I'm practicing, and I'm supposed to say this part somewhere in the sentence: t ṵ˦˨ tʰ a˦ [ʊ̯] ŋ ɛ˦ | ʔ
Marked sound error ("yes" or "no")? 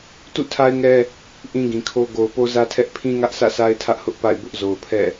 yes